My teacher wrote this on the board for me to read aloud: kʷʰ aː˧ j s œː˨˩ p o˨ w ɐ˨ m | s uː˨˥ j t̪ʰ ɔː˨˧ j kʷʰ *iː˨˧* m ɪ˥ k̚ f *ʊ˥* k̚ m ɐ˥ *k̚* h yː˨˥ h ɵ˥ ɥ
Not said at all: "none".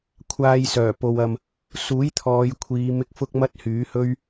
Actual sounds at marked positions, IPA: iː˨˧, ʊ˥, t̚

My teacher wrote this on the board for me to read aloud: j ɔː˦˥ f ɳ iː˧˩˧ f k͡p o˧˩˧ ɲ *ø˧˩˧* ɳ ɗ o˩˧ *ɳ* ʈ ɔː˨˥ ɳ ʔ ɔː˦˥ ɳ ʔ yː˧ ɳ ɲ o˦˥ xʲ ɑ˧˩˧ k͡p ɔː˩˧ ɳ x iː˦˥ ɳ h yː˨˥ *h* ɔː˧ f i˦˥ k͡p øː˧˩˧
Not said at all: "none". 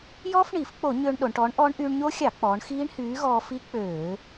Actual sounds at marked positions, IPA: ø˧, ɳ, ɣ

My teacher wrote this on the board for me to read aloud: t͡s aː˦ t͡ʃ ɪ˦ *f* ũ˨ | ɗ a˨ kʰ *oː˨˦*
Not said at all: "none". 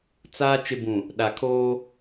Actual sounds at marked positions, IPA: b, oː˦

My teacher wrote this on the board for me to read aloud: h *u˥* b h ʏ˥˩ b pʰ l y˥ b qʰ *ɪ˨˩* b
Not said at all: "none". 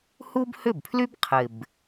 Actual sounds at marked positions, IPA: u˥, ɪ˨˩

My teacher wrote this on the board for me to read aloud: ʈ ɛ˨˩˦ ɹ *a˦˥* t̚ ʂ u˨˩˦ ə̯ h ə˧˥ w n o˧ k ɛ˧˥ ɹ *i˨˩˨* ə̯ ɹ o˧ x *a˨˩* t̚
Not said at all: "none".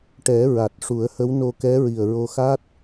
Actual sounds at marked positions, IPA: a˨˩, i˨˩, a˦˥

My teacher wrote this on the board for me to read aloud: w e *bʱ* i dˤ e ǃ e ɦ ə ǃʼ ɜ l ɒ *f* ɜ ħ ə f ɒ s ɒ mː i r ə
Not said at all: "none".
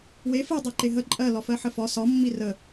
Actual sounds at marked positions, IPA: f, f

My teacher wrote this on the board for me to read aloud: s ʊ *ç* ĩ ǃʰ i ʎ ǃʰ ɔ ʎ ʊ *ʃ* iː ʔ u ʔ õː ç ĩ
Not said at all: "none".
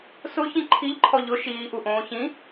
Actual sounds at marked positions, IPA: ç, ʃ

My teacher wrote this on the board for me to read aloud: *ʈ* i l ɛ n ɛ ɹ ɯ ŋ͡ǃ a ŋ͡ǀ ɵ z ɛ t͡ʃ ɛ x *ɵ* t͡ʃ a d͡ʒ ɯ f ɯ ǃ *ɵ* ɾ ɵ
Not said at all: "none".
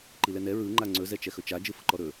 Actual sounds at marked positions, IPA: ǃ, ɵ, ɔ

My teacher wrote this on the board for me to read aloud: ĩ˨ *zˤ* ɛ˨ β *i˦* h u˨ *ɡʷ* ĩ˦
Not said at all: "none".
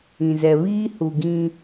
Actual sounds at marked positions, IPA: z, iː˦, ɡ

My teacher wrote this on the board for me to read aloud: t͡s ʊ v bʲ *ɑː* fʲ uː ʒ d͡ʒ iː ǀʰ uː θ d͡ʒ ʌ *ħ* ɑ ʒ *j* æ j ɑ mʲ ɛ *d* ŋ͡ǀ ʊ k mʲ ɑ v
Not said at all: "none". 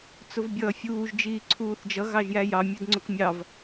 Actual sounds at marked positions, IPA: ʌː, ɣ, j, d

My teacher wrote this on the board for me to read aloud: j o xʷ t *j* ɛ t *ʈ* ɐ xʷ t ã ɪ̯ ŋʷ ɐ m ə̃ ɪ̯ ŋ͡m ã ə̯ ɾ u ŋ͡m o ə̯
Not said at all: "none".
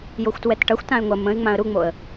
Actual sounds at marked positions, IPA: w, ʈ

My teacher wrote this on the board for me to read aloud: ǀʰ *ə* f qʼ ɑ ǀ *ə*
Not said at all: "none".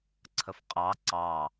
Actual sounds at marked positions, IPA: ə, ɑ

